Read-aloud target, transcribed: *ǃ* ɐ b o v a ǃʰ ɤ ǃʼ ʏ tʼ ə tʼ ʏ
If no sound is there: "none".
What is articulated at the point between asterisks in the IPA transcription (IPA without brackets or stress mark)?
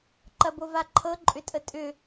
ǃ